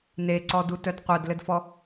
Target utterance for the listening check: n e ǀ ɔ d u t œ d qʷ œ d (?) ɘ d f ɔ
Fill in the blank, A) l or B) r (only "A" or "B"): A